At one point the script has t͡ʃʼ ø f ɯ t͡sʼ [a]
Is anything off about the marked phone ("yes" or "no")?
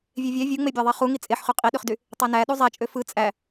yes